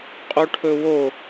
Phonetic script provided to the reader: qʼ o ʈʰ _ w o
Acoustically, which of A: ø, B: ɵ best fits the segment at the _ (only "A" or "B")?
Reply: B